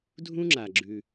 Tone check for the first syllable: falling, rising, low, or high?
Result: high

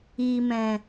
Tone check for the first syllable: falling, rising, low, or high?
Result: low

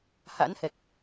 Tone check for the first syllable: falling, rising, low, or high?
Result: rising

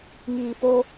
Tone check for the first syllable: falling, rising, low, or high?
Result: low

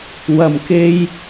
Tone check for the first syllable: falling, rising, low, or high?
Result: low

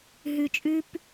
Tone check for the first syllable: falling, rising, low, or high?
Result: low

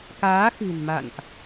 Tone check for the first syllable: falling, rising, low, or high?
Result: rising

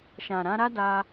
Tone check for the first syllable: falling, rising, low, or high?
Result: low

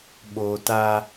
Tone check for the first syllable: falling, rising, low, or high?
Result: low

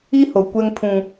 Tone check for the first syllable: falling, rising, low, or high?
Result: high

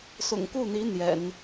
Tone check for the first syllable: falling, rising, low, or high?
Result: low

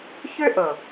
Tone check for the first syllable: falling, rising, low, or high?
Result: high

